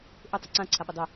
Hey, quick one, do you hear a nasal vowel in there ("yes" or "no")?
yes